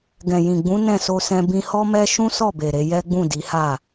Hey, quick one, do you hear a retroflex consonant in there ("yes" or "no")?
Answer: no